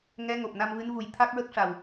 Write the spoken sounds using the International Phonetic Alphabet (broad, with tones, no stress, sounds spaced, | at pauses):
ŋ ɛ˧˥ ŋ o˨˩ p̚ n a˧ m v ɨ˧˥ n v u˨˩ j t̪ʰ a˦˥ k̚ ɹ ə˦˥ k̚ ʂ a˨˩ w